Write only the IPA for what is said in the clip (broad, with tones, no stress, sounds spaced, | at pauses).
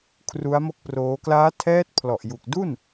kʰ r u˦˥ a̯ m o˥˩ k̚ p r oː˦˥ k l aː˦˥ tʰ ɛː˦˥ t̚ pʰ l ɔ˨˩ ʔ j u˨˩ k̚ d u˥˩ n